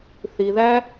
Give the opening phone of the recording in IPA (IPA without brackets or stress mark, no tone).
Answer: θ